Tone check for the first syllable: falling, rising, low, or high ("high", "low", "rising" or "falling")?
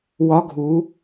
rising